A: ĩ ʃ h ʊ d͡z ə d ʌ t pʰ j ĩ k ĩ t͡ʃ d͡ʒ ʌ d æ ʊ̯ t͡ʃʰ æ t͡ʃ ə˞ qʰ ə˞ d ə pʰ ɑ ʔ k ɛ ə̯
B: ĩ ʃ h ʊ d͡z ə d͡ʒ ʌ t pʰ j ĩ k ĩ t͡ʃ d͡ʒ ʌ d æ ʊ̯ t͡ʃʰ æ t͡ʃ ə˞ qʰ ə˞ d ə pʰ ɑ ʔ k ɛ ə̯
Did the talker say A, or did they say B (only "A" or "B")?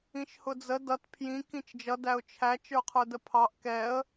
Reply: A